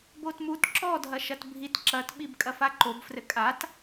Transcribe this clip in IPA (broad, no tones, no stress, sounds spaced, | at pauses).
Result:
b o t m u t ǁ ɔ dʱ ɐ ʃ ɐ t bʱ i t ǁ ɐ t ɓ i b kʼ ɐ f a ǃ o b f r ɘ kʼ a t